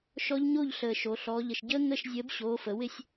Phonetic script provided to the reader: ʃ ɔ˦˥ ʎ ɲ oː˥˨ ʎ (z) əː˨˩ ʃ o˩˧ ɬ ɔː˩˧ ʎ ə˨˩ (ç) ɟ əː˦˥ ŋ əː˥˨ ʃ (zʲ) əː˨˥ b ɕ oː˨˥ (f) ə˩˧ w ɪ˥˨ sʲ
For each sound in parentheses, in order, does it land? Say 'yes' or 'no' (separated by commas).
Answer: no, no, yes, yes